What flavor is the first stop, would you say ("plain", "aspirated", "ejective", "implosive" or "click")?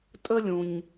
ejective